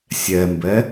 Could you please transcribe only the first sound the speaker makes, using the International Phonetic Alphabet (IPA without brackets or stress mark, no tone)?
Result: sʲ